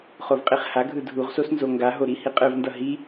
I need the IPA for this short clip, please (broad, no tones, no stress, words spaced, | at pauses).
χovqʼiχhaɡʱɯ dʱuʁsos nzoŋɡaɦo ɾihiqʼɯvndʌ ɦi